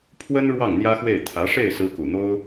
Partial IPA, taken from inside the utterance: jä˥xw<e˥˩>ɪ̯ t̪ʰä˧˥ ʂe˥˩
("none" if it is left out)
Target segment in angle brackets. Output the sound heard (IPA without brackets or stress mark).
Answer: e˥˩